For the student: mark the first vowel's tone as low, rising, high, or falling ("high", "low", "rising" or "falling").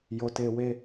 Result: low